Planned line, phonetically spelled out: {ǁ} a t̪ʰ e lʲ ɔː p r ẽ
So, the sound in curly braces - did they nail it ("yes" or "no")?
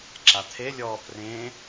yes